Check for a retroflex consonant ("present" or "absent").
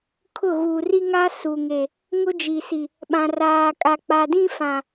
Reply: absent